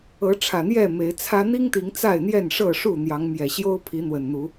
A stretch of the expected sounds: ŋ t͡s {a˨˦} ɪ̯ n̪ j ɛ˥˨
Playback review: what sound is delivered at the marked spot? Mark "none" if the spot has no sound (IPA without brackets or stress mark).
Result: a˥˨